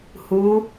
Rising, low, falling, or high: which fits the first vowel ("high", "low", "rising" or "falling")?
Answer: rising